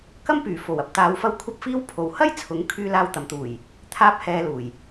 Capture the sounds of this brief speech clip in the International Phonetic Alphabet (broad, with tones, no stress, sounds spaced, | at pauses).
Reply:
k ɐ˥ m p yː˨˩ f o˨˩ w ɐ˨ p̚ t̪ aː˨˧ w f ɐ˧ w kʷʰ ɐ˥ p̚ f iː˥ w pʰ o˨˧ w h ɐ˥ j t͡sʰ ʊ˨˥ ŋ kʰ yː˥ l aː˥ w t̪ ɐ˨ m t̪ uː˨˩ j | t̪ʰ aː˥ p̚ h ɛː˧ l uː˨˩ j